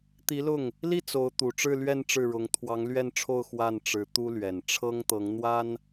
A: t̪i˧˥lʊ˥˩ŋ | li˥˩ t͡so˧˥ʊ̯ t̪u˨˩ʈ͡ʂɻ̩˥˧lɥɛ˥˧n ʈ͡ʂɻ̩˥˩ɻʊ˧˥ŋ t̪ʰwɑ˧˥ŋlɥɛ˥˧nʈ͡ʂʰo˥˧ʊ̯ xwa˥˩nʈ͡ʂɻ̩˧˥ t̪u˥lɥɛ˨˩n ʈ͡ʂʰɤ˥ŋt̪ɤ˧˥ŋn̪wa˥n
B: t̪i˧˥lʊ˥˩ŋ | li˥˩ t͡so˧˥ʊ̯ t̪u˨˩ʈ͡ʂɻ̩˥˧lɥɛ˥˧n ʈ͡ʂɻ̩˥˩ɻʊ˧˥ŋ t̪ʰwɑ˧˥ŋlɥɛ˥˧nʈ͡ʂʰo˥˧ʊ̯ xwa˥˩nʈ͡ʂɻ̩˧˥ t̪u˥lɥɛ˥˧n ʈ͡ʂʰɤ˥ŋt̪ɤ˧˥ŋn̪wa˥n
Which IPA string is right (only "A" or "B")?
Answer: A